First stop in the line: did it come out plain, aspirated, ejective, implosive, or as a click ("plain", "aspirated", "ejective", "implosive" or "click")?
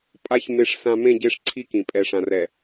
ejective